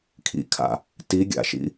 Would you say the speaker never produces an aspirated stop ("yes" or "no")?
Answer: no